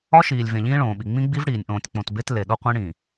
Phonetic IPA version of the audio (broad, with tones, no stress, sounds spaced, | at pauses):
ɒ˦ ʃ iː˨ lʲ v ẽ˨ ʎ ĩː˦ ɭ õː˨ ɓ i˨ ŋ͡m ĩ˦ ɡ͡b i˦ v ɽ iː˨ nʲ ʔ õː˨ tʲ k͡p õ˨ t b e˦ t l e˨ ɗ o˦ qʷ ẽ˦ ɽ ĩ˨